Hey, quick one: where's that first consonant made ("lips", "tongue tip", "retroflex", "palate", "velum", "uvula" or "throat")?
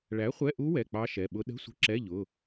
retroflex